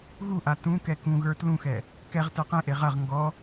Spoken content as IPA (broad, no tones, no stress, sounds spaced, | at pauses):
ɣ u ʔ a t ũ k ɛ k ũ ɣ ə˞ t l ũ x ɛ | k ɛ ʁ t ɛ q ẽ ʔ e ʁ ɐ ʁ ŋ ɡ ɔ